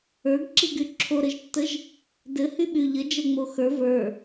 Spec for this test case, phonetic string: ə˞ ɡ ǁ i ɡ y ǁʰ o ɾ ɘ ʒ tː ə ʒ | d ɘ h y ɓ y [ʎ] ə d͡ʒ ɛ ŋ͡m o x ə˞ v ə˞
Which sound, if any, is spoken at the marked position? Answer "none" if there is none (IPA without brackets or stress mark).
ʎ